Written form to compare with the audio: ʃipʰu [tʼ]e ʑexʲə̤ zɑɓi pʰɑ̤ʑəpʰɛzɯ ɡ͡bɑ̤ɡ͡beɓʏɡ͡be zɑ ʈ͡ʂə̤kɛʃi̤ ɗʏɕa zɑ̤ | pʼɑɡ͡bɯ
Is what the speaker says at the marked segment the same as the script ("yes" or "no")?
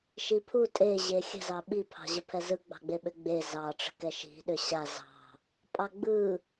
yes